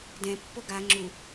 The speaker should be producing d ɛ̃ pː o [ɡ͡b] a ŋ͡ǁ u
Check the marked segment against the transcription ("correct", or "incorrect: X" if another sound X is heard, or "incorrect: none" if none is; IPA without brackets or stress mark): incorrect: ɡ